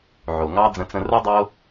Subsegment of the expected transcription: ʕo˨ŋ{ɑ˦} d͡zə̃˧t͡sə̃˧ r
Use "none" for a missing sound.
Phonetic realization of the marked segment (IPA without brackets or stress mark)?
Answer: ɑ˦